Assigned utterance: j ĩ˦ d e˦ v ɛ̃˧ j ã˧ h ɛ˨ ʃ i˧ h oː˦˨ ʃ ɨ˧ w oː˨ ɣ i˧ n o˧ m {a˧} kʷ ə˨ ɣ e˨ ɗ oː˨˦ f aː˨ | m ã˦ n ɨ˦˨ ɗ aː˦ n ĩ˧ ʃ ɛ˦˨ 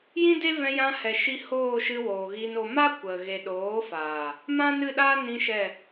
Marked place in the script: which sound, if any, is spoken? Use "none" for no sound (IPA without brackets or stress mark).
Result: a˦